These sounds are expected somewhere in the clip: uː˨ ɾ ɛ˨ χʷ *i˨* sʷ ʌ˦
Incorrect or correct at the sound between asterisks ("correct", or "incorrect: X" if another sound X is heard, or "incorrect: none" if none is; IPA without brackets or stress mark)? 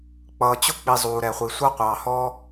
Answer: correct